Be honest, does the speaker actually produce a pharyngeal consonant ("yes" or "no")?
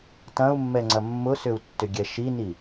no